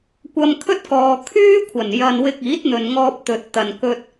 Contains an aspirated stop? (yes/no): yes